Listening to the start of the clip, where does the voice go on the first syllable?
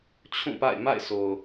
falling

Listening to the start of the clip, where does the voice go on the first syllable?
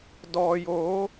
low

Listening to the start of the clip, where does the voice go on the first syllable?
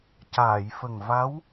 low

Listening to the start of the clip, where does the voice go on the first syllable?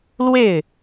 falling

